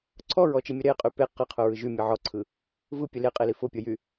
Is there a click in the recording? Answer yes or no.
yes